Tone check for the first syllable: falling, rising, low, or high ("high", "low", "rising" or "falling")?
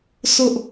high